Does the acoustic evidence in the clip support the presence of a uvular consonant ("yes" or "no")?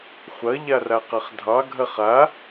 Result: yes